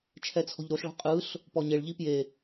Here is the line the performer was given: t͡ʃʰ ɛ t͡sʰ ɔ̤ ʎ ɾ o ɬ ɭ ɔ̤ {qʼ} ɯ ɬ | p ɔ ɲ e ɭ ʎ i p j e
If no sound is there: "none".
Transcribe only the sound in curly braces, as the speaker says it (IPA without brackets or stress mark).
qʼ